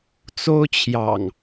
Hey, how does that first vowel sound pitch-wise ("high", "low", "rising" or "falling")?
high